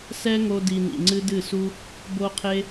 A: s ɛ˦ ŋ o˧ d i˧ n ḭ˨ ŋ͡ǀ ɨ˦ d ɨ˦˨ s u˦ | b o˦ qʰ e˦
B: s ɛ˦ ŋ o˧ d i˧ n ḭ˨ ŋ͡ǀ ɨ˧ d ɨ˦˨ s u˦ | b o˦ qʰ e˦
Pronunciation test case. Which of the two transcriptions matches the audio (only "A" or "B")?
A